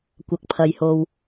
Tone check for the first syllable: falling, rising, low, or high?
low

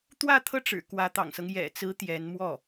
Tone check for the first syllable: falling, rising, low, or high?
falling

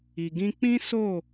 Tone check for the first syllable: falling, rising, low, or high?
low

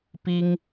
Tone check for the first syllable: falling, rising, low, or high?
high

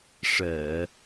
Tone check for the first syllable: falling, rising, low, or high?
low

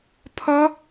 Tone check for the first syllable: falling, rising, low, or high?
rising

